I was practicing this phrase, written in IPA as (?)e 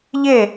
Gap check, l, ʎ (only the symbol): ʎ